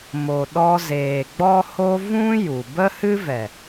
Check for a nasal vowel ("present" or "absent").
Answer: present